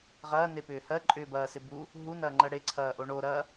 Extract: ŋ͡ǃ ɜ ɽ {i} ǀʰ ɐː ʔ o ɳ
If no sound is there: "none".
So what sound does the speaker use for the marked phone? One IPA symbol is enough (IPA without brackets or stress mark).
e